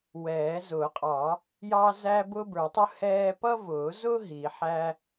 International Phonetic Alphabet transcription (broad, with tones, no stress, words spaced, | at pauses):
wɛː˨˩˦ zʊː˨˩˦qʼɑː˨˩˦ | jɑː˥ zæː˥bʊː˥bə˞˨˩˦tˤʊ˥ hɛː˥ pʌ˥vʊː˨˩˦zʊ˥ ɦi˨˩˦ħæː˥